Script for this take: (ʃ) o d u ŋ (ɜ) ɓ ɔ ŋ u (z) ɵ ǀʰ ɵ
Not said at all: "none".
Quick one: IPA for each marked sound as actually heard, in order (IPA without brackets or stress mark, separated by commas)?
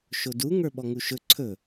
ʃ, ə˞, ʃ